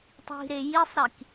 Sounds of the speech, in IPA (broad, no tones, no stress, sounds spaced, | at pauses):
tˤ i̤ ɾ e j i sˤ ɾ i k